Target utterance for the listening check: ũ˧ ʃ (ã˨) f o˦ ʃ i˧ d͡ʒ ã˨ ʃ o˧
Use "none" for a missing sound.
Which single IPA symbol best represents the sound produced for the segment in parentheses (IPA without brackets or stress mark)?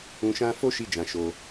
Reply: ã˦